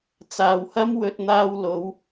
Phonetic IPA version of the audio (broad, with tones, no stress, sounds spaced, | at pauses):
t͡s aː˨ w h ɐ˥ m w ɵ˧ t̚ n̪ aː˧ w l o˨˧ w